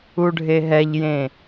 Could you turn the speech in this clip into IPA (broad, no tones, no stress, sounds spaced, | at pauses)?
u ɖʱ e ɦ ɛ ʎ j ẽ